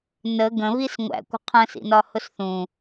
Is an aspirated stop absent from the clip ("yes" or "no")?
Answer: no